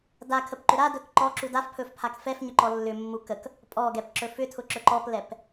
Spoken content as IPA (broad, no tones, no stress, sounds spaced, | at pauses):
d a kʰ ə p ǃ ʏ ɾ a d ɵ k ǃ ɔ ǁ u d a f pʰ ɵ f pʰ a k f ɛ f ɲ ʏ ǃ ɔ lː ʏ mː u k ə k | pʼ ɔ ɡ ɛ p ǁ ɵ f ʏ tʰ ʊ ǁ ɵ ǃ ɔ p l ɛ p